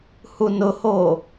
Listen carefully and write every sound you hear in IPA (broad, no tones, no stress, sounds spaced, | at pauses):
h u n ʊ h oː